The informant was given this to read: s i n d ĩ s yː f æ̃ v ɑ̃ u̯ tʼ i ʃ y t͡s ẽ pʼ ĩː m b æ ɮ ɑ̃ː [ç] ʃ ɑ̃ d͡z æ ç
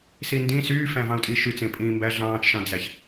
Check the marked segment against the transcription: incorrect: t͡ʃ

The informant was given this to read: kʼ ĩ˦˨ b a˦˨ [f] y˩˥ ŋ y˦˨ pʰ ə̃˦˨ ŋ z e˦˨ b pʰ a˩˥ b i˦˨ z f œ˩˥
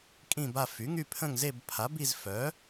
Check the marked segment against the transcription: correct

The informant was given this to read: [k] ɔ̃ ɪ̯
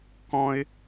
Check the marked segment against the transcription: correct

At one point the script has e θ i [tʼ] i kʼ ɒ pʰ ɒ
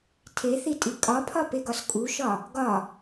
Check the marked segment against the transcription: correct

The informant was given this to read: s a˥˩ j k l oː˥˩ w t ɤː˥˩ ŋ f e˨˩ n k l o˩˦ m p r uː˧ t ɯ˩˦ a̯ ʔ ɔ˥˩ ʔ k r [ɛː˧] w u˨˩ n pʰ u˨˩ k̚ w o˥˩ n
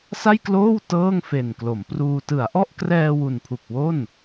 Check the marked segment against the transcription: correct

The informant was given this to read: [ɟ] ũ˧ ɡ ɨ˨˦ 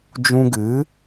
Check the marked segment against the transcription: incorrect: d͡ʒ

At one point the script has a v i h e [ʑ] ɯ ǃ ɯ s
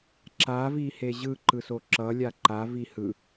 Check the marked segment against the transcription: correct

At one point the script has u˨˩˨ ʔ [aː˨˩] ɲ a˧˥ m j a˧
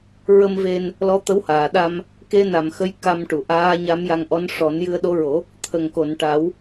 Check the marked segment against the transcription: incorrect: aː˧˥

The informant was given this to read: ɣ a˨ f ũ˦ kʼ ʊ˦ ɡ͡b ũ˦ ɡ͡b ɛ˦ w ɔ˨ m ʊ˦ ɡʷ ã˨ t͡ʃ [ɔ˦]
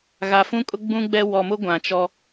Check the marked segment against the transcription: correct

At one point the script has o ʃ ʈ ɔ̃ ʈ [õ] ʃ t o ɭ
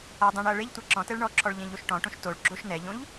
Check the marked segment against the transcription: correct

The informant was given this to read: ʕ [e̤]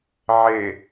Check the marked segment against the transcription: incorrect: e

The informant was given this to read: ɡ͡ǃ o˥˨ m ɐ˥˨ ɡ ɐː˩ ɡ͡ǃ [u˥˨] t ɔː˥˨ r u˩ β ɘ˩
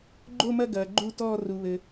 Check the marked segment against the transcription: correct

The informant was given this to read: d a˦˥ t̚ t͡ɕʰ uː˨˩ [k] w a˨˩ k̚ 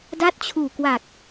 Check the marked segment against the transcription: correct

